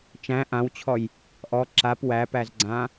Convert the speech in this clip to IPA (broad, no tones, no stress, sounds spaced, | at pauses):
t͡ʃ æ̃ ʔ ã w t͡ɕʰ ɔ j | ʔ ɔ ǁ a p w æ p æ z ɡ͡ǀ ã